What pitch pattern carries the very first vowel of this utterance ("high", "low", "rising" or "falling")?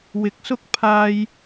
low